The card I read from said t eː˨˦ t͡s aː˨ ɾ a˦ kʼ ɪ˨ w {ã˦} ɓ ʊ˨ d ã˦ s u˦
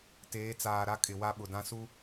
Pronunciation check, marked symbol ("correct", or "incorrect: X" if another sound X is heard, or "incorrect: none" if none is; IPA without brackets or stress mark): incorrect: a˦